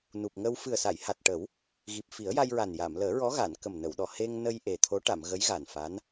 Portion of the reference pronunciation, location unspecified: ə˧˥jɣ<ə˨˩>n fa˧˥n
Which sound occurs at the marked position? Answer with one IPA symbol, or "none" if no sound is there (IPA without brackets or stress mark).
a˨˩